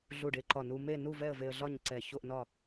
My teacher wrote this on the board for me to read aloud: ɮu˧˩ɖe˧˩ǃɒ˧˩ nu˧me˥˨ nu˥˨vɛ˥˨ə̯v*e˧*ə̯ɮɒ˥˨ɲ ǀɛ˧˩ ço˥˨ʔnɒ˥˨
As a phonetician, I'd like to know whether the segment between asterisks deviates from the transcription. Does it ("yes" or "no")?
no